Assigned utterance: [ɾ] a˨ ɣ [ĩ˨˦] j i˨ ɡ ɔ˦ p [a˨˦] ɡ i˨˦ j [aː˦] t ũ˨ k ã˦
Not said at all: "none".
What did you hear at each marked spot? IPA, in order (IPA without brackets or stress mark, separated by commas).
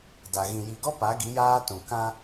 d, ĩ˨, a˨˦, aː˦